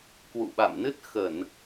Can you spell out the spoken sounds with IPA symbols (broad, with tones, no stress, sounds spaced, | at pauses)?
k w ṵ˧˨ ɓ a̰˧˨ m n ɨ˦˥ t̚ x ə˧˩˨ n